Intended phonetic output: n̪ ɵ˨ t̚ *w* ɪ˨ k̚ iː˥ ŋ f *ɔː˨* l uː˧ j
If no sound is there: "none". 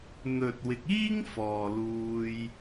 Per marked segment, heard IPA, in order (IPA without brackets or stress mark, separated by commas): w, ɔː˨